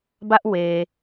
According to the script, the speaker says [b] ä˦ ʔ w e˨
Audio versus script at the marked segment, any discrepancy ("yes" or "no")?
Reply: no